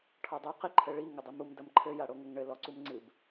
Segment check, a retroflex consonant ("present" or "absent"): present